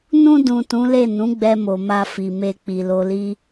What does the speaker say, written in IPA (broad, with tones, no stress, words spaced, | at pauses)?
nũ˧dũ˨ tũ˨˦le˦˨ nũ˨˦ɡ͡bɛ˧mo˨ ma˧fi˨ me˧k͡pi˨lo˧li˦